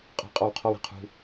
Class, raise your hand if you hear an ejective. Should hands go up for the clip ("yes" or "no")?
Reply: yes